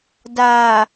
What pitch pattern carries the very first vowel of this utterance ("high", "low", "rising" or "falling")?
low